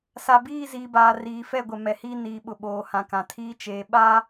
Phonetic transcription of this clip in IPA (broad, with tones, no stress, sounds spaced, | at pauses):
s a˨ b iː˦˨ z iː˨ b aː˨ r iː˨ f ɛ˦˨ ɡʷ ɛ˨ m ɛ˨ h iː˦ n iː˨ ɓ ʊ˨ ɓ oː˨ h ã˨ k ã˨ tʰ iː˦ t͡ʃ eː˨ ɓ aː˦